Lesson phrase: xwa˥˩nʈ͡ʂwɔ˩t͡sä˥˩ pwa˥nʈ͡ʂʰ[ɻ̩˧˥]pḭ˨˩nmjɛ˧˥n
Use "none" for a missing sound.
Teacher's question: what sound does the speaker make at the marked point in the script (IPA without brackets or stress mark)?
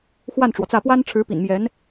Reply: ɻ̩˧˥